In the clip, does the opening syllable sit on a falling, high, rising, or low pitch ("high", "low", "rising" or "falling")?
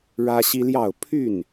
high